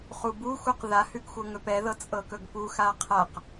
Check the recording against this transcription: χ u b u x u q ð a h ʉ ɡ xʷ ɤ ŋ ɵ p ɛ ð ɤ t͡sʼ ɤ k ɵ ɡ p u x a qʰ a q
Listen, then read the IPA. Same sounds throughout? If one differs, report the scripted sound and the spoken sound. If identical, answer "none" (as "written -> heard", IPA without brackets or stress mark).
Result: none